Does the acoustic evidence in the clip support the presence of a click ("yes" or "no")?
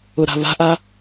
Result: no